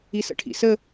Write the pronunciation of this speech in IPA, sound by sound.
i s ə̰ ʈʰ ḭ s ə

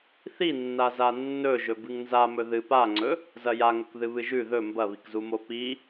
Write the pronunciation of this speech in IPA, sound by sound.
θ i nː a z a nː ɵ ʒ ɵ b ɨ ŋ n z a m ɵ ð ɨ p a ŋ͡ǀ ɵ | z ɐ j a ŋ ɵ k ð ɨ β ɨ ʒ ʉ ð ɵ m b ɐ β i k z u m o p i

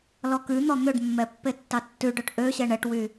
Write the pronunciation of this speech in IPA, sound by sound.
l ɔ k ʉ n̪ ɔ n̪ ø ɖ mː ɛ pː e tː ɑ tː ʉ ɖ œ ʈ ʔ ø ɕ ɛ ɳ ɛ ʈ w y

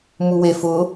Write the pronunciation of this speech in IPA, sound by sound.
m u w e f ʊ

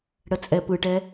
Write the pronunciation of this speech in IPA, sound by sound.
ɽ ə t͡sʼ ɛ p ɯ ʈ ɛ

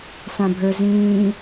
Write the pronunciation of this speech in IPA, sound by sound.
s ã bʱ ə˞ z ĩː

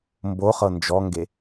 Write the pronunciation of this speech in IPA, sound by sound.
m b o χ ɤ n d͡ʒ ɔ ŋ ɡ e

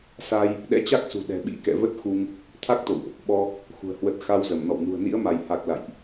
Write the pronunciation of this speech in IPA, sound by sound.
s a˧ j | ɗ ɛ̰˧˥ t͡ɕ a˦˥ k̚ s ṳ˨˩ ɗ ɛ̤˨˩ ɓ ḭ˧˥ k ɛ̰˧˨ v ə˦˥ t̚ x u˧ ŋ | t̪ʰ a˦˥ k̚ t̪ o̰˧˨ w ʔ | ɓ ɔ˧ | x ṳ˨˩ ə̯ h w ə˨˩ t̚ x a˧ w z ə˧˩ m n ɔ̰˧˨ w n ṳ˨˩ ə̯ n ḭ˧˥ ə̯ m a˧˩ j h a˨˩ k̚ l a̰˧˨ j ʔ

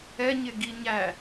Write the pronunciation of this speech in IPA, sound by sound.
ɛ ɲ ɪ ɡ i ɲ æ

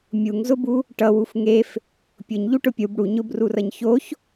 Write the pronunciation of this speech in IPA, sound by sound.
mʲ u ŋ z ʊ b u | ʈ ʌ w u f ŋ e f | pʲ ʊ ɲ ʎ u ʈ ʊ pʲ u b ɽ u ɲ ʊ b r u r ʌ ɲ ç o ç

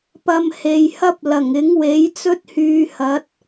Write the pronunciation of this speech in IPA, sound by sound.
p ɐ˧ m h e˨ j h ɐ˥ p̚ l ɐ˨˩ ŋ ɪ˨˥ ŋ w e˨˥ j t͡s ɵ˥ t̚ h yː˨˧ h ɐ˨˥ t̚

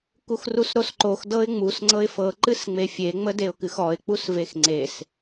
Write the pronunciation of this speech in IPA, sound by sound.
k u x r u s ɾ o s ǃ o x d ɤ ɪ̯ ŋ͡m u s ŋ͡ǀ ɤ ɪ̯ f ɤ ǃ ɨ s ŋ͡m e fʲ e ŋ͡m ə d e ʊ̯ k ɨ x ɔ ɪ̯ k͡p u s v e x ŋ͡ǀ e s

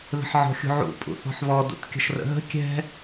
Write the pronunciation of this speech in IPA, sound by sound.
ð ə̤ ħ ʕ ɔ̤ xʲ ṳ ʕ ṵ pʼ ṵ θ ɔ̤ ħ β ɔ d ṵ t kʲ ə̤ ʃ r ə̰ ɦ ə̤ kʲ ɛ̤

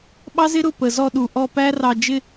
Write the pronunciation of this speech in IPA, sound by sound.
ɓ ɑ˦ z ɪ˦ ɾ ʊ˦˨ p ə˨ z ɔ˧ ɗ u˨ ʔ ɔ˧ p æ˦ r ɑ˧ d͡ʒ ɪ˦

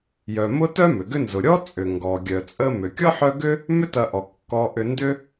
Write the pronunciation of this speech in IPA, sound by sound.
j œ˩ m ʊ˥ t œ˥ m ʏ˩ ɡ ʏ˦ n z ʊ˩ ɾʲ ɔ˥ t͡sʼ ʏ˩ ŋ ɡ ɔ˩ ɡʲ œ˩ t͡sʼ ə˦ m ʏ˩ kʲ ɔ˥ ħ œ˦ ɡ ʏ˥ | m ʏ˦ t ɐ˨ ʔ ɔ˩ kː ɔ˨ ʔ ʏ˨ n d ʏ˦

